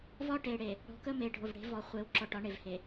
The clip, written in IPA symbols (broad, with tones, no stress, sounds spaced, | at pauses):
v ɒ˦ ʈ e˨ ɽ e˨ | ɽ ɔ̤˨ k ə˦ m e˨ ɖʱ ʊ˨ v ɽ e̤˨˦ v ɔ˨ χʷ e˨ w ǁ ɔ˨ ʈ ɒ˨˦ ɳ e˨ v h e˨